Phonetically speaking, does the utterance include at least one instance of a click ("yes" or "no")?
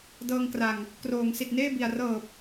no